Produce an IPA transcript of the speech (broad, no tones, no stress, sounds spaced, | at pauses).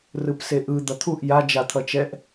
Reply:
r ɯ p s e ʔ ɯ d̪ ʌ t̪ʰ u ʔ j a d͡ʒ a t̪ʰ ʌ t͡ʃ ɛ ʔ